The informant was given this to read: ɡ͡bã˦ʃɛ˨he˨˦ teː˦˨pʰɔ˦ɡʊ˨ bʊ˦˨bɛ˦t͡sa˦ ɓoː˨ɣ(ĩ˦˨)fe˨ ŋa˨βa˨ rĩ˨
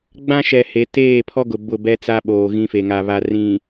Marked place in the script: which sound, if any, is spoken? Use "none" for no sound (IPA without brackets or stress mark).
ĩ˦